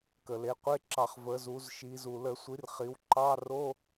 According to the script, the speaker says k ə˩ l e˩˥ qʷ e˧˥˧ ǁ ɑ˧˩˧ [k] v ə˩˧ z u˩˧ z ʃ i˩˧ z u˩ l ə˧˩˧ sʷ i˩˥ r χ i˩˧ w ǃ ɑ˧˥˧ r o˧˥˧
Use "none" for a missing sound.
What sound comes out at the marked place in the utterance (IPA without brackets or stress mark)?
χ